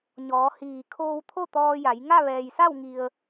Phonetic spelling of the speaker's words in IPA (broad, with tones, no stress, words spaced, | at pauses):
ɲɔː˩˧hiː˩ kʰoː˧wt̪ʰo˥˨ t̪ɔː˧ja˩˧j ŋa˥˨ ʋɛː˩jsa˥˨wŋi˩ə̯